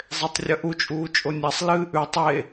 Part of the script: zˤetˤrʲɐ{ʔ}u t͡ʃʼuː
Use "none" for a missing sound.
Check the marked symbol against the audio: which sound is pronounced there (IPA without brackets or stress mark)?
ʔ